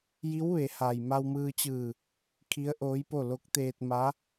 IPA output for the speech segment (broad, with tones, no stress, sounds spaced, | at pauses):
j i˧˥ w ʋ e˩˧ h a˩ j m a˧ w m ɯː˧ t͡ɕ ɯː˧˩ | kʰ i˧˥ ə̯ ʔ oː˧˥ j p o˥˨ l o˧˥ k̚ t̪ eː˧ t̚ m a˧˥